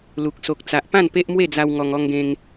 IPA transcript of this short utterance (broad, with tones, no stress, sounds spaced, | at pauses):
l u˨ k̚ s o˨ k̚ t͡s a˨ ʔ p ã˥˧ n p e˦ ʔ m w e˥˧ d͡z a˧ w ŋ ɔ˧ ŋ ɔ˦ ŋ ɡ ẽ˦ ŋ